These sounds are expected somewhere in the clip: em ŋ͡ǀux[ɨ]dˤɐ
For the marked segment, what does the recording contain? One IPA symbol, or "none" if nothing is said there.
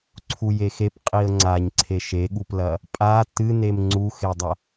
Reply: e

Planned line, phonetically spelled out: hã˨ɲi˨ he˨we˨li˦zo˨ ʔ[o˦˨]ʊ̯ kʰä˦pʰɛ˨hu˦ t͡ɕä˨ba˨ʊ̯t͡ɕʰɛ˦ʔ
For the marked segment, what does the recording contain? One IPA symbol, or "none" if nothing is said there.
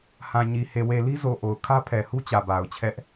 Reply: o˨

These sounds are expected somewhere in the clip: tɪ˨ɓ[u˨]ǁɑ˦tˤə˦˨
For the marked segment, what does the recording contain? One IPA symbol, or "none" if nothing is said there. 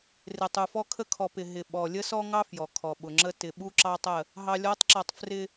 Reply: u˦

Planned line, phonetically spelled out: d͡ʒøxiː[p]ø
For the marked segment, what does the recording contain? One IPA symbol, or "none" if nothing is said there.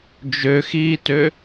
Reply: t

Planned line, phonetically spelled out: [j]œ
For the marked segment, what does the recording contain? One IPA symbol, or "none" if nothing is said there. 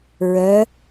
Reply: ɹ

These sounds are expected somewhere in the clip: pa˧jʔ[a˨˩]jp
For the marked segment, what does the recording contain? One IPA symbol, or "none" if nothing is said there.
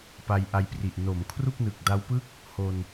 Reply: a˧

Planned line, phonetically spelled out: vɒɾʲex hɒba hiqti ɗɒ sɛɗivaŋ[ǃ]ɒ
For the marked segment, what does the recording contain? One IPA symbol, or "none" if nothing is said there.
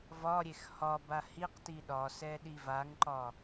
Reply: ǃ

